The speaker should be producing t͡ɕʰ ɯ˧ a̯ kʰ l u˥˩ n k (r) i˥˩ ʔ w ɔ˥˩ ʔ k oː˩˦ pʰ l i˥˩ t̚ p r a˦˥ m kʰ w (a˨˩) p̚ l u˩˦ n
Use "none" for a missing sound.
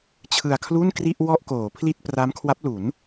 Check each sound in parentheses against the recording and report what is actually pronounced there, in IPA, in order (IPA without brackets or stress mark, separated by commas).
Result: r, a˦˥